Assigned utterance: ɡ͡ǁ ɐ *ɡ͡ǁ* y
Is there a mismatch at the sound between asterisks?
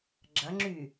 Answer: yes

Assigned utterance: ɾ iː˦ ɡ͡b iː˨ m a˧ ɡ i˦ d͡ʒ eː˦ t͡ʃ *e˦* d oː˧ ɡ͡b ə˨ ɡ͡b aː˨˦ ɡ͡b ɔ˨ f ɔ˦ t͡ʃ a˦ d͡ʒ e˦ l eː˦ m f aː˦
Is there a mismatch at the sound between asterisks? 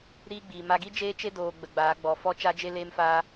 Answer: no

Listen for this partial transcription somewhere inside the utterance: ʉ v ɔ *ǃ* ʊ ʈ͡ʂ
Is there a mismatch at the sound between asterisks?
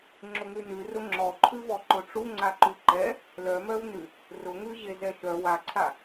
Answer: no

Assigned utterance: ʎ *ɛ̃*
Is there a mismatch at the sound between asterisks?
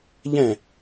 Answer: no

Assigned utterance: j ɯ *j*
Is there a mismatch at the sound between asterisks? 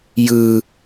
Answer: yes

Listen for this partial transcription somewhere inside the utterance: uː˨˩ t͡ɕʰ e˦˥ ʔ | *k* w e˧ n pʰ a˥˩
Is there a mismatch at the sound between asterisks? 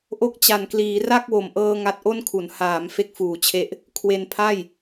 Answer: yes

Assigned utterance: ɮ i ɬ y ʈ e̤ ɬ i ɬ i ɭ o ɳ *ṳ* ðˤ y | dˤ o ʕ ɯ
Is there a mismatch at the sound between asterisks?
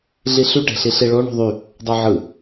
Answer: no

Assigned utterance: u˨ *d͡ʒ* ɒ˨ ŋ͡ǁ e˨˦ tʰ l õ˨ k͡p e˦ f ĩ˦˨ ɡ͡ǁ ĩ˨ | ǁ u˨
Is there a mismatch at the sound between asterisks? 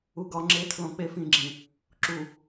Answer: yes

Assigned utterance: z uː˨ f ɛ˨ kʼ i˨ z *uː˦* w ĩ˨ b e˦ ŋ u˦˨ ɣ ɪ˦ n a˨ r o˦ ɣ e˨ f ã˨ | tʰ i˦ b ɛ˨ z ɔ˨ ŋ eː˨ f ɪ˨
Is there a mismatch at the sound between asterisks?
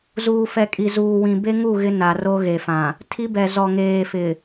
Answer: yes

